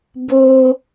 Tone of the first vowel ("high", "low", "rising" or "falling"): high